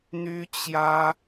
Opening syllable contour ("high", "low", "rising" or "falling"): high